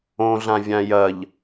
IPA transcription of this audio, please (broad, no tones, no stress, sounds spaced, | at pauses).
õ ɮ ã vʲ ã j ɐ ʎ